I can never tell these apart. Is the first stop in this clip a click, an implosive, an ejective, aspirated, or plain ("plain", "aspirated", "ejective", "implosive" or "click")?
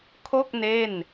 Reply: aspirated